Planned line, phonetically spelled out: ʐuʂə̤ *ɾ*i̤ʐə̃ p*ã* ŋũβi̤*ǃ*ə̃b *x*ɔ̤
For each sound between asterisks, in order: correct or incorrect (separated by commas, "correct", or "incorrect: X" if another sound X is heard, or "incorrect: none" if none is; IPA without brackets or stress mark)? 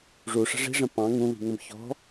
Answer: incorrect: ʐ, incorrect: ɑ̃, incorrect: ŋ, incorrect: ç